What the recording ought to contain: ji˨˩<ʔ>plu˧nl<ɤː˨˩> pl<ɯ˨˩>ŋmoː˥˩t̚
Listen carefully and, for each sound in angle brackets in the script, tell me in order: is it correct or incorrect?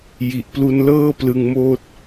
correct, incorrect: ɤː˥˩, incorrect: ɯ˧

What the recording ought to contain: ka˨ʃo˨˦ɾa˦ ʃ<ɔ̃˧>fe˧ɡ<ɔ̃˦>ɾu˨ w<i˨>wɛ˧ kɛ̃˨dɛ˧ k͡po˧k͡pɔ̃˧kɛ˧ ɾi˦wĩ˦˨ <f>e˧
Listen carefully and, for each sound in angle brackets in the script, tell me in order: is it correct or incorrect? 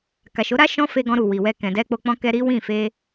incorrect: ɔ̃˦, incorrect: ɔ̃˧, correct, correct

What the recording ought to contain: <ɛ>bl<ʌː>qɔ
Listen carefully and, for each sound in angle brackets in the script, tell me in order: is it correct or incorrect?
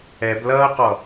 correct, correct

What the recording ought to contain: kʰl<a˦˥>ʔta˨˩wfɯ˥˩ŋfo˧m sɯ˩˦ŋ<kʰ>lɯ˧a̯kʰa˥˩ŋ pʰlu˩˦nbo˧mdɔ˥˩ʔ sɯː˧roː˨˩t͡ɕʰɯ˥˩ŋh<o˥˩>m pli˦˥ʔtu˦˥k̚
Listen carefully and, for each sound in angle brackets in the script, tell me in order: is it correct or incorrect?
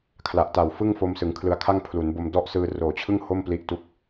incorrect: a˨˩, correct, correct

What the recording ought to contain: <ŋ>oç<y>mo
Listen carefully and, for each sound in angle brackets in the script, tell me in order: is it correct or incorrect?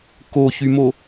incorrect: k, correct

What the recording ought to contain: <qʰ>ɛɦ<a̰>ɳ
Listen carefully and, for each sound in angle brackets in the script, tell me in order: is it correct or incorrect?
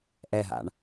incorrect: ʔ, correct

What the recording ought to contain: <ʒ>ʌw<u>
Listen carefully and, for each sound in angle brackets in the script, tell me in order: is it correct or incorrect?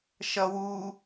incorrect: ʃ, correct

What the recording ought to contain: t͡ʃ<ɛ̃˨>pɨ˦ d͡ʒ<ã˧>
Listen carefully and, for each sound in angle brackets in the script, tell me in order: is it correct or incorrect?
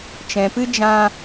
correct, correct

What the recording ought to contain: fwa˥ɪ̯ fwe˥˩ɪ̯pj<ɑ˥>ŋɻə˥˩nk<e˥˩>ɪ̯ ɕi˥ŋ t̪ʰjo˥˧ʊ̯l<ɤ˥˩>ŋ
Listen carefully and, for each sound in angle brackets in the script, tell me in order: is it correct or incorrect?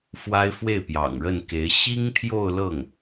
incorrect: ɑ̰˨˩, incorrect: e˧˥, correct

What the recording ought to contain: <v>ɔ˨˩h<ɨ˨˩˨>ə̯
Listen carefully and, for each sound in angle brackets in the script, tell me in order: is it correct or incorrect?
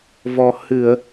correct, correct

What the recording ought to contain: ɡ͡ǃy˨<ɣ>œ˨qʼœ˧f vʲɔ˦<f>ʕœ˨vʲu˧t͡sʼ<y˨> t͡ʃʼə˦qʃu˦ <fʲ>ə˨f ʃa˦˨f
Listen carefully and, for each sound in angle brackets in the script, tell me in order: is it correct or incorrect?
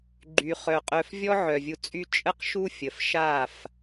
incorrect: χ, incorrect: none, incorrect: y˦, correct

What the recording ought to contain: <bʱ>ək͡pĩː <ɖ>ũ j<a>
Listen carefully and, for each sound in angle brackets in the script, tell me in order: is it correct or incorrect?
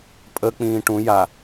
incorrect: pʼ, incorrect: ʈ, correct

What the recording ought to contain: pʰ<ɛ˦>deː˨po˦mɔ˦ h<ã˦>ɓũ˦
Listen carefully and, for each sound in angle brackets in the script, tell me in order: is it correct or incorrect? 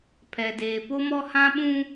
incorrect: ɛ˨, correct

